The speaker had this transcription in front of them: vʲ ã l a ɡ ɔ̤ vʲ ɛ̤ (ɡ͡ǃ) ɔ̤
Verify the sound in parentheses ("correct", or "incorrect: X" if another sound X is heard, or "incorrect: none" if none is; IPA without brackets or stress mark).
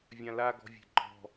correct